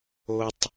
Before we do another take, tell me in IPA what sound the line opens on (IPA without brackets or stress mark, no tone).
o